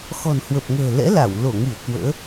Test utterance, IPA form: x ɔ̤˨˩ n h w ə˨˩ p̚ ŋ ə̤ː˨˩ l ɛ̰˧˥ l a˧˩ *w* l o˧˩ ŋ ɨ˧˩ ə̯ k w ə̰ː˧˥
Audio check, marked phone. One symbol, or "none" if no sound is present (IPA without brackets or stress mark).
w